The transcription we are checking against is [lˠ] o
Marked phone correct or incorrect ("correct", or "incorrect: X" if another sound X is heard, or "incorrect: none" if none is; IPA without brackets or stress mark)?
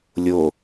incorrect: lʲ